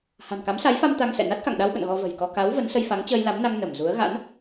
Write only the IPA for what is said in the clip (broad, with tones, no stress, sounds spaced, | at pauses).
h a̤˨˩ n k a˨˦ m s a˨˦ j f a˧ m t̪ a˧ ŋ s ɛ̰˧˨ n a˦˥ t̚ k a̰˧˨ ŋ ɗ a˧ w ɓ ə̰˧˨ n ɣ ɔ˧ v ə̤˨˩ j k ɔ˧ k a˨˦ w v ə˨˦ n s ə˧ j f a˨˦ ŋ t͡ɕ əː˧ j l a˨˦ m n a˧ ŋ n ə˧˩ m z u˨˦ ə̯ ɣ a̰˧˥ n